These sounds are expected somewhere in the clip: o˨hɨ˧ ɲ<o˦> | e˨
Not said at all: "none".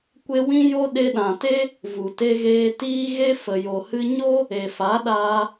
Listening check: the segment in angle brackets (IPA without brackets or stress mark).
o˦